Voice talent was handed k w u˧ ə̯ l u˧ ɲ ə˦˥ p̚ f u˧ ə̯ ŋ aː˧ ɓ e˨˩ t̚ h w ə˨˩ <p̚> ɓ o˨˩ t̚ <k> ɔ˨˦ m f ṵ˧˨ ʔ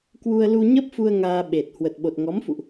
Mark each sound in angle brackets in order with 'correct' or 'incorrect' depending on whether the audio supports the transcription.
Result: incorrect, incorrect

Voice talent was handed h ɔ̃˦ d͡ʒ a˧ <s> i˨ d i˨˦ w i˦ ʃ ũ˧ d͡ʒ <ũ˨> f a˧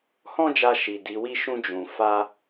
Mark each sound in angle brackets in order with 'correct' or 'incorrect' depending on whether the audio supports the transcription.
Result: incorrect, correct

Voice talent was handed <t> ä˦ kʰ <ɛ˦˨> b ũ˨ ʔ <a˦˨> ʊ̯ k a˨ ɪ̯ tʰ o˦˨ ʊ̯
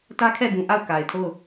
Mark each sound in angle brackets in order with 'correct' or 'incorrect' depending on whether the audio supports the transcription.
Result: correct, correct, correct

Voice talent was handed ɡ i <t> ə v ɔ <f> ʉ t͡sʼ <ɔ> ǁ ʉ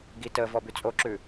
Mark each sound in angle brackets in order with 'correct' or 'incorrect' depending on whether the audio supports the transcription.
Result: correct, incorrect, incorrect

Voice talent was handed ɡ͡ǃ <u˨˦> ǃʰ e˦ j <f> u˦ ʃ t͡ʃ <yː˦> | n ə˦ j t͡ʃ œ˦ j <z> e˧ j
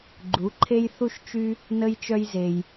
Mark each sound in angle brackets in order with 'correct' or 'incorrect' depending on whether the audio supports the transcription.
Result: correct, incorrect, incorrect, correct

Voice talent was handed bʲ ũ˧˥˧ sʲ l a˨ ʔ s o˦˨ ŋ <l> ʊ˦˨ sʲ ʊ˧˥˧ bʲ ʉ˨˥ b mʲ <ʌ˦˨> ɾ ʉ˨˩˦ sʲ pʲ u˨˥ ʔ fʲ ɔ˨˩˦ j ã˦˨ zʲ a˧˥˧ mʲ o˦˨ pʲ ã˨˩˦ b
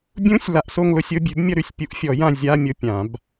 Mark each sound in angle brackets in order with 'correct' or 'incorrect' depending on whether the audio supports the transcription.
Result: correct, correct

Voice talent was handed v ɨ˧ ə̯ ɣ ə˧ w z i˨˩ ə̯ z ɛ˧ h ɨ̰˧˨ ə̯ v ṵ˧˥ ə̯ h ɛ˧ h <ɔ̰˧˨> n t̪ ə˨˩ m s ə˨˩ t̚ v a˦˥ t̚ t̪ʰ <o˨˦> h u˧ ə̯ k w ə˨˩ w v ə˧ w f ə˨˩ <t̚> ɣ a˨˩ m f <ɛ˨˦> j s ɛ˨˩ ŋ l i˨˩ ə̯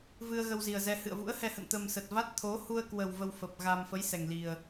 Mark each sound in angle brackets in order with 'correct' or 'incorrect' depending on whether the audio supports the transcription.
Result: incorrect, correct, incorrect, incorrect

